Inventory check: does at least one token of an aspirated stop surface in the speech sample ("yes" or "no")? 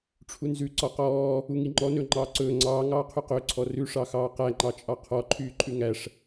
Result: yes